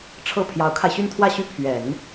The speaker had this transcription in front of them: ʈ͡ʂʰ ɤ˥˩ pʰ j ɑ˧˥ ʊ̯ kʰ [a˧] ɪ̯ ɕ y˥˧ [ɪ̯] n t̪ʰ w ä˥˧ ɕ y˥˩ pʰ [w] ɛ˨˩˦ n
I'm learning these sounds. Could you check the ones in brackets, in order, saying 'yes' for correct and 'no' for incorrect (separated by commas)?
yes, no, no